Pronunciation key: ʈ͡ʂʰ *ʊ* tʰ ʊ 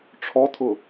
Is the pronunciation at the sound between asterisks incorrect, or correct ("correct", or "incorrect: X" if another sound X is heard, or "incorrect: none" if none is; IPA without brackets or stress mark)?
incorrect: ɔ